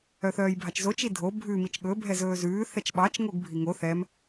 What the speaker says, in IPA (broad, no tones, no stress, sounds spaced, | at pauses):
œ θ œː j bʱ ɑ t͡ʃ z o t͡ʃ i dʱ o bʱ ʉ m i t͡ʃ ɠ ɵ bʱ ɛ z ɵː z ʉː θ ɛ t͡ʃ ɓ ɑ t͡ʃ ŋ o ɡ bʱ i ŋ o θ ɛ m